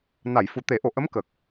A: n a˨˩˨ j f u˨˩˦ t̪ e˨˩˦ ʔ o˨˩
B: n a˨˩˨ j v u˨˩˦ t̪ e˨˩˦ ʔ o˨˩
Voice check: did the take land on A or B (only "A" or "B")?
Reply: A